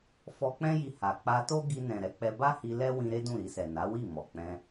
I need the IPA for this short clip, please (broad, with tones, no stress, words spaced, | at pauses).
fɔ˧k͡pɛ̃˦ji˧ ha˨ k͡pa˧to˦ ɡi˧nɛ̃˨ ɾɛ˨˦k͡pɛ˧ ba˦hi˧ lɛ˦ wĩ˧ ɾe˦dũ˦˨ɾi˧sɛ˨ na˨˦wi˦˨ mɔ˨k͡pɛ̃˧